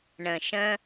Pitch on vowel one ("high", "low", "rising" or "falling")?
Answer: low